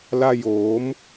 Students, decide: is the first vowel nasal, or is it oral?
oral